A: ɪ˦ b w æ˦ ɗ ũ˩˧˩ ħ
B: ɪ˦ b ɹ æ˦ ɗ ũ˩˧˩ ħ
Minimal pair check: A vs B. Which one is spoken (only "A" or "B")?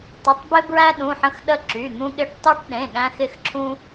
B